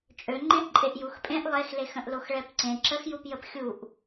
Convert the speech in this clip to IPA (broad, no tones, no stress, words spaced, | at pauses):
t͡ʃʼø ŋ͡ǃẽʔǃʼeʔjuxpʼẽʔ lˠexlex ə̃ʔloxɭɛpǀẽ ǁəxjupjəp xʲuʔ